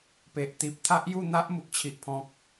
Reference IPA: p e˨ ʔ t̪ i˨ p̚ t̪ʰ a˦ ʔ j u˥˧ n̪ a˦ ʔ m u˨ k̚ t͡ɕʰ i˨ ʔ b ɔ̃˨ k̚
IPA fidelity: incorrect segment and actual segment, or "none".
b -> pʰ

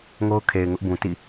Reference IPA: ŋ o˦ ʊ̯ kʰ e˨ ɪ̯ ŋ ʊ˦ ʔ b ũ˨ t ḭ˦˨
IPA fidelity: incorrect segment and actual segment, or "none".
none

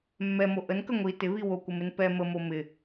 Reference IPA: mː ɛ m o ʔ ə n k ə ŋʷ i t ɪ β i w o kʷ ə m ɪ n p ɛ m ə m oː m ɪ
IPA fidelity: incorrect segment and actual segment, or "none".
oː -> o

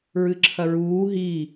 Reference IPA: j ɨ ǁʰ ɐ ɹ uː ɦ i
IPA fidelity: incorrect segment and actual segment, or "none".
j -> ɹ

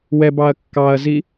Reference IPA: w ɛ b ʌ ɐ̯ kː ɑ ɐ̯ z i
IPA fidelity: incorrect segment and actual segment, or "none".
ʌ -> ɑ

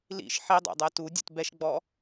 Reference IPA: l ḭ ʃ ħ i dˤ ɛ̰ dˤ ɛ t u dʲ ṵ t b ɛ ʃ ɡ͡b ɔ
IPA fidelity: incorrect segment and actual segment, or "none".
none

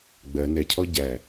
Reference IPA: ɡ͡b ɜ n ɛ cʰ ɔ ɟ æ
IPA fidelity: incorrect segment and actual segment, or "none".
none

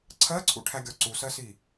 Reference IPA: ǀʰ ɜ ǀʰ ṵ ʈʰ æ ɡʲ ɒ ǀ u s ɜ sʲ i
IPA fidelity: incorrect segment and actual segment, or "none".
sʲ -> s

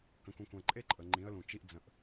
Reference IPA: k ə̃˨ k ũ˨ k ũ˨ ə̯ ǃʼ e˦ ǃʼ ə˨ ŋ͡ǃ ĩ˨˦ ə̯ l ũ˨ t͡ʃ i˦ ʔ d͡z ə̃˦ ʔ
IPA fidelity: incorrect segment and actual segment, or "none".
none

